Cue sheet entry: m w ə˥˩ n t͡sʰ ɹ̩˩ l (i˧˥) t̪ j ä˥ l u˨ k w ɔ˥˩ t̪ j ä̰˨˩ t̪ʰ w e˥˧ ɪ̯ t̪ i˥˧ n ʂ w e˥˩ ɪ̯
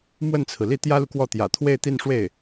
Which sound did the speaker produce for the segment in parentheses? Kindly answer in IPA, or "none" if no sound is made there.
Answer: i˥˩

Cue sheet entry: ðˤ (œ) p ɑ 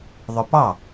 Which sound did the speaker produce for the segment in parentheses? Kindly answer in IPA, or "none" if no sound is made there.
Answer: œ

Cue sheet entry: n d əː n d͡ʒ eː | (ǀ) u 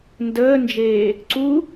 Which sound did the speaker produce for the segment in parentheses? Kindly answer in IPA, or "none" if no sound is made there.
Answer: ǀ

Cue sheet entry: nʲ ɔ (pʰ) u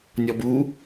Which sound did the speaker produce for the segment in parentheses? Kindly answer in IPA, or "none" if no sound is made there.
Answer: b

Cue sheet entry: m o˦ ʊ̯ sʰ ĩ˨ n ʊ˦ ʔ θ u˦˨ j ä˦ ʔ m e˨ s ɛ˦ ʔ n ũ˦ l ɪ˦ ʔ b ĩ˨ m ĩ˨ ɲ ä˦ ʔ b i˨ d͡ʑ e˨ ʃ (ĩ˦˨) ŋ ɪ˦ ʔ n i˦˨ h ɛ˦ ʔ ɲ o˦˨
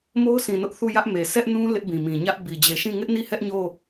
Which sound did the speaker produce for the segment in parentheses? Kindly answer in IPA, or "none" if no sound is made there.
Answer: ĩ˦˨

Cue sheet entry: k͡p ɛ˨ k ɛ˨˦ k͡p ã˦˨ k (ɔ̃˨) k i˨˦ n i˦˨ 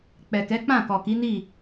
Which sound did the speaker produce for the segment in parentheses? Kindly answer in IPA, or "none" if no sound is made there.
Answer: ɔ˨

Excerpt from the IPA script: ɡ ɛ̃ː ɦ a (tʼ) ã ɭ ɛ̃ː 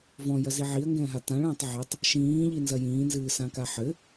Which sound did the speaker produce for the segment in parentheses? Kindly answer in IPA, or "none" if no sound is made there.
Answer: t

